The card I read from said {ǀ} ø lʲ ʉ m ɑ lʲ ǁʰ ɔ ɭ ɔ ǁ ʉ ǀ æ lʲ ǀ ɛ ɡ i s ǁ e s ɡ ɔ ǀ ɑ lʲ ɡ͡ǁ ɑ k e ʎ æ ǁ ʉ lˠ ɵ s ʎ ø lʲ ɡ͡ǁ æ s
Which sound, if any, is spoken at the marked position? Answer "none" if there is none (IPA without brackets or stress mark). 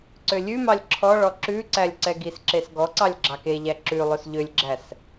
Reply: ǀ